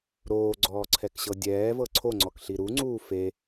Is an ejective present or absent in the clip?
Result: absent